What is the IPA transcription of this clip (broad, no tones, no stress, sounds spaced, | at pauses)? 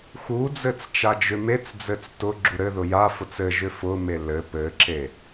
x u d͡z ɘ t͡s t͡ʃ a d͡ʒ ʏ m e t͡s d͡z ɘ t͡s t ʊ ɡ͡ǁ u ɾ ɘ ð ʊ j a f ʊ t͡s ɘ ʒ ʏ f ʊ m e l ɘ p ɘ ǁ e